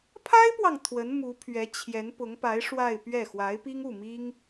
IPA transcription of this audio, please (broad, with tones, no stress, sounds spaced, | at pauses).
pʰ a˥ ɪ̯ p w ɑ˨ ŋ t̪ʰ w ə˧˥ n m u˧˥ pʰ ɥ ɛ˧˥ t͡ɕʰ j ɛ˧˥ n p ʊ˧˥ ŋ p a˧˥ ɪ̯ ʂ w a˥˧ ɪ̯ p ɥ ɛ˥˩ x w a˧˥ ɪ̯ p i˥ ŋ u˥˩ m i˥ ŋ